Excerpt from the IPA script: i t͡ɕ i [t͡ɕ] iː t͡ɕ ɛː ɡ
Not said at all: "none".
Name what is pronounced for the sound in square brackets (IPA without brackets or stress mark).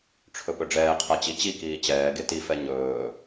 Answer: k